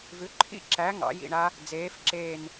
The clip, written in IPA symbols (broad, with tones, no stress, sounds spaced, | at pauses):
v ʉ˩˥ ǃʰ ḭ˦˥ ǁ æ˩˥ ŋ ɑ̰˩˥ j ḭ˧˩ ɳ a˦˥ | d͡z eː˩˥ f ǁ eː˧˩ n